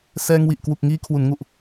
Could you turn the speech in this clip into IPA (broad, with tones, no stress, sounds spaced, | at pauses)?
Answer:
s ɛː˧ ŋ w i˨˩ ʔ k w u˨˩ k̚ ŋ iː˧ kʰ w u˩˦ n ŋ u˨˩ ʔ